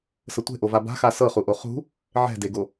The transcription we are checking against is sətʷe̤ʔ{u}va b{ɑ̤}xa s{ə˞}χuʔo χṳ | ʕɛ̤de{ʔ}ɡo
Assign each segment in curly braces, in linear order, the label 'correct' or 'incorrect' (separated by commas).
incorrect, incorrect, incorrect, incorrect